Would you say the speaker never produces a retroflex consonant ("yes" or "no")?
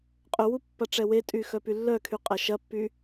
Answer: no